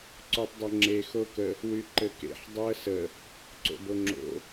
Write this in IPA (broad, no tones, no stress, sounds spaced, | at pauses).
ǀ o tˤ dˤ ɐ ŋ͡ǁ e x o k ə | w y ǃ ɘ k ḛ ħ dˤ o ə̯ s ə | ǀ o̰ b o ŋ͡ǁ o̰